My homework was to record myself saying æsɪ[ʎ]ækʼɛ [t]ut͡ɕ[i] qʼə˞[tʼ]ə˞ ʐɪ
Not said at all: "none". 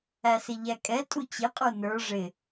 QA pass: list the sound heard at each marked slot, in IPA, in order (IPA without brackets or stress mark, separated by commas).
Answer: ʎ, tʼ, ɪ, n